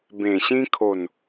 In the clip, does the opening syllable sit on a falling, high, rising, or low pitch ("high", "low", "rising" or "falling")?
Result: low